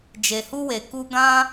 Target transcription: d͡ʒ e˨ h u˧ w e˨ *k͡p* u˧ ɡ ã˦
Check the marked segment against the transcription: incorrect: k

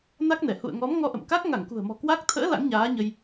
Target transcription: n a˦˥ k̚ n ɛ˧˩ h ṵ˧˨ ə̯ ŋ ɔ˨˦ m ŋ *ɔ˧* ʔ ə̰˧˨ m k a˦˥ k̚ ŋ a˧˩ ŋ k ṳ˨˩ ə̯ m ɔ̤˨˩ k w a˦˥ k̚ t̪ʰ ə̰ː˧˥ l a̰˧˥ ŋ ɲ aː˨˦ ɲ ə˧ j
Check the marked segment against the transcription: correct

